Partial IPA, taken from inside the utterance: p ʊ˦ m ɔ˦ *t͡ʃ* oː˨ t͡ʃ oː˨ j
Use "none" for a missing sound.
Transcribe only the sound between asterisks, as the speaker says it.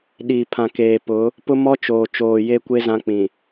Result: t͡ʃ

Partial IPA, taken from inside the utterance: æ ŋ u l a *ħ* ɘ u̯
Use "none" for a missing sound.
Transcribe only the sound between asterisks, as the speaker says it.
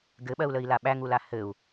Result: h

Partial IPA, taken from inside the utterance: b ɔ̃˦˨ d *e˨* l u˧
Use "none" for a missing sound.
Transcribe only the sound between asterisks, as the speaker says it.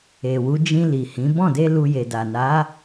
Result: e˧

